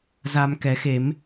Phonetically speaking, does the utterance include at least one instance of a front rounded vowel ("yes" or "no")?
no